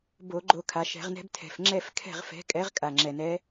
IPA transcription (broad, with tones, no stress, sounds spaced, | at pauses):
b o˧˩˧ ɡ͡ǃ o˧˩ kʰ a˩ ʃ ɛ̤˧˩˧ ʁ n ɛ̤˦ b tʰ ɛ̤˩ f ŋ͡ǁ ɛ˥˨ f kʰ ɛ̤˥˨ ʁ f ɛ̤˨˥ kʼ ɛ˨˥ ʁ kʼ a˩ ŋ͡ǁ ɛ˩ n ɛ˨˥